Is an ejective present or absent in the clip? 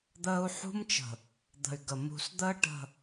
absent